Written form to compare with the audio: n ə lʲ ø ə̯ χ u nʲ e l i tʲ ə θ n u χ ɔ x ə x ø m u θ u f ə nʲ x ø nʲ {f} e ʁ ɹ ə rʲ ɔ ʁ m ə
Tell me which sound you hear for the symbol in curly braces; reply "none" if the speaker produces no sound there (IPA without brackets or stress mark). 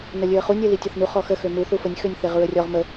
θ